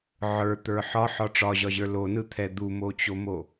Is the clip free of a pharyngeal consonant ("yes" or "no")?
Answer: no